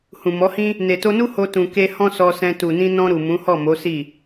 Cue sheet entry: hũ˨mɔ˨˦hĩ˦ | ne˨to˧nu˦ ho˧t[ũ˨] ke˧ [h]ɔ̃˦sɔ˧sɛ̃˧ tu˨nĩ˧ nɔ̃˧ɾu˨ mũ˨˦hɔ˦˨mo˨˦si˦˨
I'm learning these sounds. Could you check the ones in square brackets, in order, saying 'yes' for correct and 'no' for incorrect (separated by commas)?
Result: yes, yes